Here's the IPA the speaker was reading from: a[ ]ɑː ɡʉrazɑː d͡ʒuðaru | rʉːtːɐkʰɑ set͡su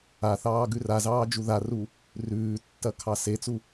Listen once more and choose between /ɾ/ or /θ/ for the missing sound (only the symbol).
θ